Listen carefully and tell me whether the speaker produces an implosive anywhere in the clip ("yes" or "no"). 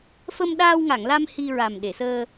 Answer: yes